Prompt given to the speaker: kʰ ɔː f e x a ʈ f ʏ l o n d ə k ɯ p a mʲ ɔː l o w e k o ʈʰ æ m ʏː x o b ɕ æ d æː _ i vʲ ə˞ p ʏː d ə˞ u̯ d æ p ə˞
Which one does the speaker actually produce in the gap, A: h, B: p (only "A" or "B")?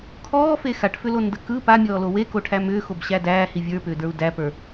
A